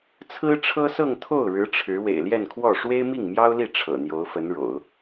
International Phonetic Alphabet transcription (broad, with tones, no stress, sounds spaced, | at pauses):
t͡sʰ ɹ̩˥ ʈ͡ʂʰ ɤ˥ s ɤ˥˧ ŋ t̪ʰ o˥˩ ʊ̯ ɻ ɻ̩˧˥ ʈ͡ʂʰ ɻ̩˧˥ w ḛ˨˩ ɪ̯ l j ɛ˥˧ n kʰ w ɔ˥˩ ʂ w e˥ ɪ̯ m i˥˩ ŋ m j ɑ˥ ʊ̯ l i˥˩ ʈ͡ʂʰ ɤ̰˨˩ n̪ j o˧˥ ʊ̯ f ə˧˥ n ɻ o̰˨˩˦ ʊ̯